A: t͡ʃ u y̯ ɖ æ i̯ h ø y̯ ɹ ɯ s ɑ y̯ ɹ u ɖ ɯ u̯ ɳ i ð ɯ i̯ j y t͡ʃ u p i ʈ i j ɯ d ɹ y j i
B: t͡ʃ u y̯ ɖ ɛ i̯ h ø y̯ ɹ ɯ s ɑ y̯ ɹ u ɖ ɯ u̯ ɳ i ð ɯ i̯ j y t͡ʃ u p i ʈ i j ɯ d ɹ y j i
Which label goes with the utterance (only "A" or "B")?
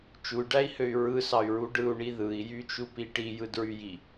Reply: A